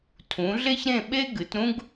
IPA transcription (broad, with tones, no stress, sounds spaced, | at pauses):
tʰ ũ˨˦ ɮ e˥ ç ɾ ẽ˥˧ ɓ e˥ ɡ ɨ˨˦ t ɾ ũ˥ ɡ